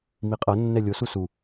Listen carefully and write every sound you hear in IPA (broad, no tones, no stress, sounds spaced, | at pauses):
m i qʼ ɤ nː ɛ lʲ o s u s u